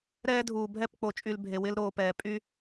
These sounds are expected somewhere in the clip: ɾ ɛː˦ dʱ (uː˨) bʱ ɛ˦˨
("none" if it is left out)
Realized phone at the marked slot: uː˨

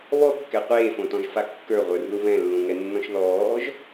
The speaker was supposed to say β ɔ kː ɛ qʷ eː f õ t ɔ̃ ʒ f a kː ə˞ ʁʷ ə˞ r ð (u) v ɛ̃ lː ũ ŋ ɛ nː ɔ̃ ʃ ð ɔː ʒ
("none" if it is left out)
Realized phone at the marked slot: u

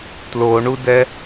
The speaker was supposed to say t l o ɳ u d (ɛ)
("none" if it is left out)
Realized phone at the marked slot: ɛ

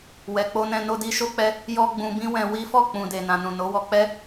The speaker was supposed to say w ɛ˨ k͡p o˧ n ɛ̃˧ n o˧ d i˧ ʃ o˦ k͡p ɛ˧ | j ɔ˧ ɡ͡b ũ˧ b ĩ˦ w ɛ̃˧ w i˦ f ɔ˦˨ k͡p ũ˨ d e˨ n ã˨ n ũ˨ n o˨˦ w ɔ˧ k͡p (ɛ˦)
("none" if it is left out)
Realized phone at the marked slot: ɛ˦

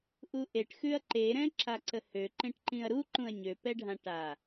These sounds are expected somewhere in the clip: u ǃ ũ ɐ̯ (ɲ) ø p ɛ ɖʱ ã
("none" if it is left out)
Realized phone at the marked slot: ɲ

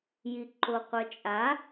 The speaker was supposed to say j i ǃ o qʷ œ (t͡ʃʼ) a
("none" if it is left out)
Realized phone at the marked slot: t͡ʃʼ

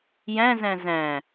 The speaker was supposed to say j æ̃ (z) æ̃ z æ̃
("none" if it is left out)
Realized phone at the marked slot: z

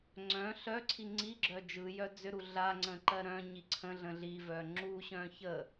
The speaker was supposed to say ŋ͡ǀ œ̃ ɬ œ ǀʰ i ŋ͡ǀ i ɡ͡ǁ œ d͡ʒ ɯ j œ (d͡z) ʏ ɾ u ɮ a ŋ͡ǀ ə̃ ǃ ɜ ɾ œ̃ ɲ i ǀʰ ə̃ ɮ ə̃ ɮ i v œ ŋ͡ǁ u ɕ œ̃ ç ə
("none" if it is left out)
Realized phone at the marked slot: d͡z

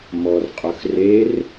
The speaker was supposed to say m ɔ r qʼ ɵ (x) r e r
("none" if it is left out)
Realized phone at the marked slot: x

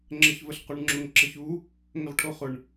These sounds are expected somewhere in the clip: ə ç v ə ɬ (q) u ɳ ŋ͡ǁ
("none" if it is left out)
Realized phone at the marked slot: q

